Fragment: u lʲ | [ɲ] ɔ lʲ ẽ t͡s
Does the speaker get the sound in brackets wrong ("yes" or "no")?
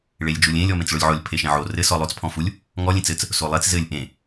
yes